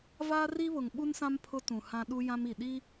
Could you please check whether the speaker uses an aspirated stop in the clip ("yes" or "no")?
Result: yes